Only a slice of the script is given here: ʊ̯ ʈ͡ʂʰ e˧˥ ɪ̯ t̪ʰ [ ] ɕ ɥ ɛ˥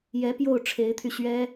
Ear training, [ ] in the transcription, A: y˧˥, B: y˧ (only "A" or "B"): B